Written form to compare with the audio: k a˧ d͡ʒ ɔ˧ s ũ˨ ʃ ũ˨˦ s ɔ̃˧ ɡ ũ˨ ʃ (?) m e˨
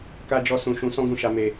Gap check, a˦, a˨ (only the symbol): a˨